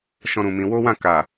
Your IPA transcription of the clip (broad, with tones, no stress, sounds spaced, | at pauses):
ʃ ɔ̃˦ ɾ ũ˧ m ĩ˧ w o˦ w ã˦˨ k a˨